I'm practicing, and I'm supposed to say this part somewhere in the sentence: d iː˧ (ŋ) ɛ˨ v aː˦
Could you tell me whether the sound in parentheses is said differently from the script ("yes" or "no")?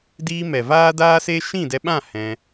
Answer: yes